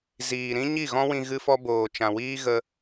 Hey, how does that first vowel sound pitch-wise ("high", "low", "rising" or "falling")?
low